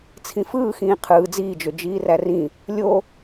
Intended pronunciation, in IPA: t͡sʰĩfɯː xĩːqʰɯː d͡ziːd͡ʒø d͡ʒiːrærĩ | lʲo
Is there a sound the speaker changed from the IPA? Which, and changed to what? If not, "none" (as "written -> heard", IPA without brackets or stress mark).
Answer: none